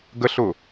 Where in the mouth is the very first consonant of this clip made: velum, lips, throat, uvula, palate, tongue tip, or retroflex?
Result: velum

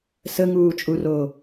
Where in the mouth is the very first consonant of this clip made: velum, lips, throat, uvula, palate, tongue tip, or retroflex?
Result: tongue tip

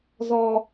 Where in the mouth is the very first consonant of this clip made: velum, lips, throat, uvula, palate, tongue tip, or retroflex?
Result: tongue tip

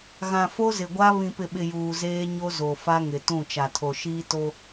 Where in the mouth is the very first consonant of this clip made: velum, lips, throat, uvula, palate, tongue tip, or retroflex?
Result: velum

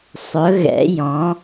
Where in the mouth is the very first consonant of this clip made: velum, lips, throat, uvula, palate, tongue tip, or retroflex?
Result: tongue tip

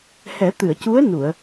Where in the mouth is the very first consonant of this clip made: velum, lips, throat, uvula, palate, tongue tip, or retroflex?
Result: throat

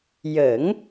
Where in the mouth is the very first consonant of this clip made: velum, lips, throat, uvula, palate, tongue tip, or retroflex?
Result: palate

